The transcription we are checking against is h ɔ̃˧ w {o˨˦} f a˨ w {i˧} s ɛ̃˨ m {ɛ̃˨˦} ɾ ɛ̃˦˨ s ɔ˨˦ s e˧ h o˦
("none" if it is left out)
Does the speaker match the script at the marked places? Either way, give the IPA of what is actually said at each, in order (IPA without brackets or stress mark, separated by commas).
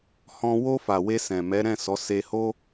o˧, e˧, ɛ˨˦